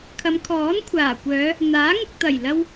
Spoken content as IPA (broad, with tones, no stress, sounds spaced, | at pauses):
kʰ ɐ˨˧ m kʰ ɔː˨˥ n kʷʰ aː˨˩ kʷ œː˨˧ | n̪ aː˨˥ ŋ ʊ˨ k̚ t̪ ɐ˨˩ j l ɐ˧ w